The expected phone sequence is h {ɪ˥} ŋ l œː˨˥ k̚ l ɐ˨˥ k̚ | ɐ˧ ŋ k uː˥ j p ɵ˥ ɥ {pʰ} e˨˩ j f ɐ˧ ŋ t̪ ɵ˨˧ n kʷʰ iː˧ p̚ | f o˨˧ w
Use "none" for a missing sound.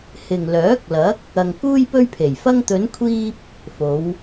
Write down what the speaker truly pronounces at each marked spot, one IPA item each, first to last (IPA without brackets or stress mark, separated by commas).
ɪ˨, pʰ